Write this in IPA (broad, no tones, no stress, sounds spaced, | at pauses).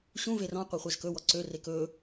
ɕ ũ v e r ɔ̃ qʷ e χʷ e z k ɵ w ɔ ǀ ø r e k ɵ